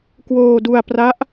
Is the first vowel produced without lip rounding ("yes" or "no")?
no